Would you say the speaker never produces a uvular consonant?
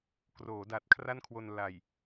yes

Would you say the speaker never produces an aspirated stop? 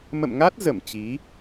yes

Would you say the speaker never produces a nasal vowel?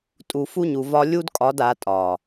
yes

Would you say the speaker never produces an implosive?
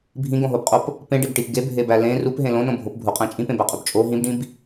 yes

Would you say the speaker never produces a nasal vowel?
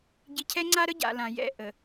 no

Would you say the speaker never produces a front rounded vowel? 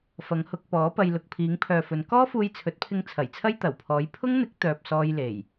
no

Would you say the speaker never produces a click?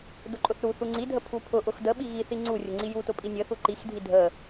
no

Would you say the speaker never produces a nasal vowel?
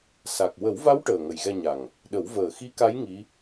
yes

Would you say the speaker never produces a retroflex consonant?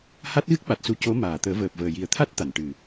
no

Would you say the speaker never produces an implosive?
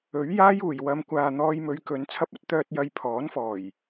yes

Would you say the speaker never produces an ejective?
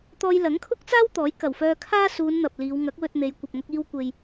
yes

